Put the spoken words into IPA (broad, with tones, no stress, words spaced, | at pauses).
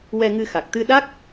wɛ˧ŋɨ˧xa˨˩k̚ t̪ɨ˧ɗa˦˥k̚